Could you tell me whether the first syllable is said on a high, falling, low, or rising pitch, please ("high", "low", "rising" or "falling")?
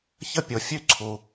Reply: high